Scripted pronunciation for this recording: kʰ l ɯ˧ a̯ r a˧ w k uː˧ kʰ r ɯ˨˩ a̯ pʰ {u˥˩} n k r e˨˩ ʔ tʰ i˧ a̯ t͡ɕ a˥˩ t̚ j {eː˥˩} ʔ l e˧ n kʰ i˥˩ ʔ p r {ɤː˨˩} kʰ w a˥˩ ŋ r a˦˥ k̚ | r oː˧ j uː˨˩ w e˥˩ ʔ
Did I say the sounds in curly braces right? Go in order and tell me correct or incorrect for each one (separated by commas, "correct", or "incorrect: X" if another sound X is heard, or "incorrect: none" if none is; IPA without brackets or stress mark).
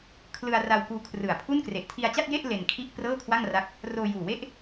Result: correct, incorrect: e˥˩, incorrect: ɤː˥˩